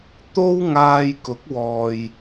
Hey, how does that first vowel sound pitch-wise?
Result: high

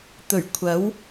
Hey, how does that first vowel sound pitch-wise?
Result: low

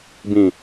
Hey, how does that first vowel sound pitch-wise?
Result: low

